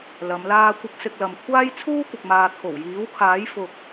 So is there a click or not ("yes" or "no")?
no